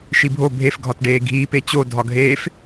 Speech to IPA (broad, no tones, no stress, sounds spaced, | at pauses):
ʃ i bʱ o bʱ e f ɡʱ ɒ t ɖ eː ɡʱ iː p e t͡ɕ o dʱ ɒ ɡʱ eː f